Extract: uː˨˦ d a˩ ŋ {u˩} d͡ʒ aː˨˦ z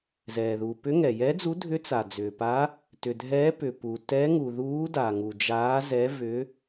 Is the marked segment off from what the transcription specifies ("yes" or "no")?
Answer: no